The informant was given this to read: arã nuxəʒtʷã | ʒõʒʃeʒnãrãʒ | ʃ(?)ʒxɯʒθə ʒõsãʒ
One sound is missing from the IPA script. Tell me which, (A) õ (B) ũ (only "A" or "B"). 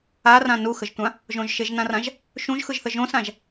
B